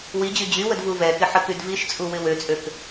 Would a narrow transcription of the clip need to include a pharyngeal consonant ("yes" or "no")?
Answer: yes